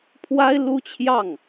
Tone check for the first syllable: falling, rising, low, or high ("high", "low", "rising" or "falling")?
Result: high